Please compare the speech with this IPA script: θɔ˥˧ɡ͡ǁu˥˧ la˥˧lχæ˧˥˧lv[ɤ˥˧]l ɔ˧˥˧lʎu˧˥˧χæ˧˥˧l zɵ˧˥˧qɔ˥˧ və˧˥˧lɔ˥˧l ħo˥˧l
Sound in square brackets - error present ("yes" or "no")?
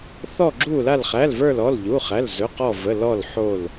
yes